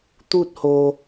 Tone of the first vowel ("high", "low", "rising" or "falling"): high